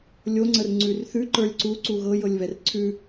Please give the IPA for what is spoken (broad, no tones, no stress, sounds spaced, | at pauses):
lʲ o ŋ͡ǀ ə r ŋ͡ǀ ʉ r θ ʉ ǃ ə˞ lʲ ǀ u ǀ u ɣ ɤ j ɤ lʲ β ɛ r ǀʰ ʉ